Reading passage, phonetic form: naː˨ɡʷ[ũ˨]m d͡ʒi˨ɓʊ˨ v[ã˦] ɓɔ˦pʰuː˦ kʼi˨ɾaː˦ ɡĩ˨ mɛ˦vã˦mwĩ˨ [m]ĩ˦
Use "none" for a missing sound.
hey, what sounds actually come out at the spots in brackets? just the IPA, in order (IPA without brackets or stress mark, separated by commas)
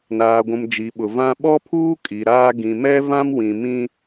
ũ˨, ã˦, m